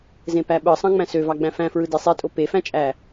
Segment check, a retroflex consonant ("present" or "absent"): absent